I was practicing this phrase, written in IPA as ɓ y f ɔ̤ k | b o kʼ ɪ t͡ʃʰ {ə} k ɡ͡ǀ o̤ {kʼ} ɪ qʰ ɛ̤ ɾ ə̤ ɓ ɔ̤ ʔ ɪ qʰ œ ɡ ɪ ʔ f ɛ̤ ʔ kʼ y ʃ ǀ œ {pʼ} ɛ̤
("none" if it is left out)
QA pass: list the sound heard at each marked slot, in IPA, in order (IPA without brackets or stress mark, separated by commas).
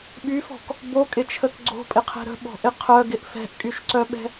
ə, pʼ, ɓ